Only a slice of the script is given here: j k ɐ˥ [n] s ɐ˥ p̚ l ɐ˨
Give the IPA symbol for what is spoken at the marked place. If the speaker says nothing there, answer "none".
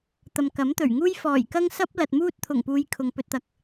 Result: ŋ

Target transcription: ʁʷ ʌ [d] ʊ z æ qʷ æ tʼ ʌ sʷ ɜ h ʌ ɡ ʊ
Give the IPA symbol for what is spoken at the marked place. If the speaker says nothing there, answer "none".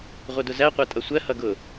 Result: d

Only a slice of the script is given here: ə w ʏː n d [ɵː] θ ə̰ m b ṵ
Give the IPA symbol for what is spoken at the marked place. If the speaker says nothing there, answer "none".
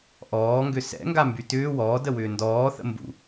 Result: ɔː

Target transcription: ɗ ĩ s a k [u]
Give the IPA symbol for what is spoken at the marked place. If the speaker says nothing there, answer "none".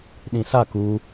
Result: u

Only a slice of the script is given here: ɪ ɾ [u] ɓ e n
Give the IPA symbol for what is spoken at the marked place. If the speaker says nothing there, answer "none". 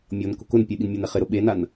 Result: ʊ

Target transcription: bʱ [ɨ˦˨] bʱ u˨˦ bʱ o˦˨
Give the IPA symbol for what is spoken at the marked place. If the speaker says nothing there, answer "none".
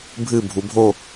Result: ɨ˦˨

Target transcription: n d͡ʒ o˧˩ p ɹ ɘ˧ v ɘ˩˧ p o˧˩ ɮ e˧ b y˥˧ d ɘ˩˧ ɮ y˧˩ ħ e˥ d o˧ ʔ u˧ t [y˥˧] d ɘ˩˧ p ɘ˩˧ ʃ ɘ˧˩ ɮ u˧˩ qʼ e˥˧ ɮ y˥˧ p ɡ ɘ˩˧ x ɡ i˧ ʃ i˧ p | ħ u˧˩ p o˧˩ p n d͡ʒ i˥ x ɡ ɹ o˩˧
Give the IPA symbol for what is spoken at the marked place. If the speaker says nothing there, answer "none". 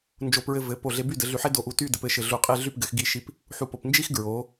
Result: y˥˧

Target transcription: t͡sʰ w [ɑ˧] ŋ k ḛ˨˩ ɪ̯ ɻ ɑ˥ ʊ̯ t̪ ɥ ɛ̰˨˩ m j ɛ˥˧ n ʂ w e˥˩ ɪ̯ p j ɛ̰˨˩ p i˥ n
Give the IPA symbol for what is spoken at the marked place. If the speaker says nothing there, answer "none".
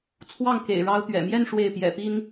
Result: ɑ˥˩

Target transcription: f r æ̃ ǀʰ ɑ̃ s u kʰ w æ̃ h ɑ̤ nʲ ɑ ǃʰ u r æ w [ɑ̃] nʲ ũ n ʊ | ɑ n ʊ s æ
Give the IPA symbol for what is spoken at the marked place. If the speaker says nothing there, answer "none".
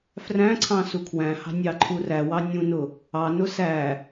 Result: ɑ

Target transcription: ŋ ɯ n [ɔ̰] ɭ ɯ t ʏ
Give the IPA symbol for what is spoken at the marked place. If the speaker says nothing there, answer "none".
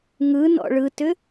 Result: ɔ̰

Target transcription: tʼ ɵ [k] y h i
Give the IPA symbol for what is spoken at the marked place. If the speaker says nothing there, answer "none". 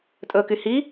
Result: k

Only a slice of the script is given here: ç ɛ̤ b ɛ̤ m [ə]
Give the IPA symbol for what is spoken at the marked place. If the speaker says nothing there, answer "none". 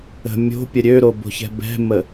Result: ə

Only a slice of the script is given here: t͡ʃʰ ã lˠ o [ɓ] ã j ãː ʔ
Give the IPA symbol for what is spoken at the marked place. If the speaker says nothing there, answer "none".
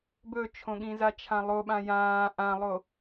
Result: ɓ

